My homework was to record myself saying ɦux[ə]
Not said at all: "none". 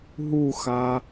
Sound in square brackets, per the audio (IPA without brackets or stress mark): a